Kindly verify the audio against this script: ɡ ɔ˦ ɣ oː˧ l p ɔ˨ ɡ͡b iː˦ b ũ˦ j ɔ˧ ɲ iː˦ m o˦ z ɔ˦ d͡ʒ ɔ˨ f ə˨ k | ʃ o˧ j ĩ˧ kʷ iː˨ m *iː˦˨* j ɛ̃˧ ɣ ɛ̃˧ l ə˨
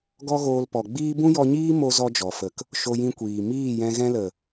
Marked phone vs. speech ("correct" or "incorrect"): correct